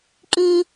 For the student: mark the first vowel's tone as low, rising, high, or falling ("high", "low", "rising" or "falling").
high